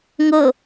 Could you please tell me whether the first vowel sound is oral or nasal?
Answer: oral